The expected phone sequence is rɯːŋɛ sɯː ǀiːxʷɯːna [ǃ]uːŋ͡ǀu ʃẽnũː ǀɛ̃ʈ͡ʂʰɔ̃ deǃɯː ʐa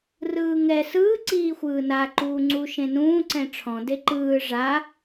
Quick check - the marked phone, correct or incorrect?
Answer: correct